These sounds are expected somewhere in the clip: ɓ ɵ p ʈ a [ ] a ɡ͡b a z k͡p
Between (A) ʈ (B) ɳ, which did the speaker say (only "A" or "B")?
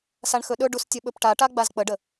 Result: A